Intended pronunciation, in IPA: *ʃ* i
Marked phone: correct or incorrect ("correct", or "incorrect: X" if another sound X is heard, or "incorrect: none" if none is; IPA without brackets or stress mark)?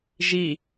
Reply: incorrect: ʒ